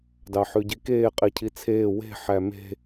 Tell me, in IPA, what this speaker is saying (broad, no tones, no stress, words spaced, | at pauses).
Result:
dɑħʉɟikeː qʼicʰit͡sʰeː we̤ ħæme̤